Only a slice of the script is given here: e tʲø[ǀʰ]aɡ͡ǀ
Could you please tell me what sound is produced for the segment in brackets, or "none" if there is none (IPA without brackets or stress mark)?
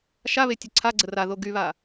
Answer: ǀʰ